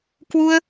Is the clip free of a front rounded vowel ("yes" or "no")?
yes